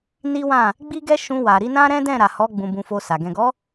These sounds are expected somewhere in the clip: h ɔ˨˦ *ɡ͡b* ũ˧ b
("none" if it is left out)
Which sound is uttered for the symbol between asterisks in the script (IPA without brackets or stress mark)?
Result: ɡ͡b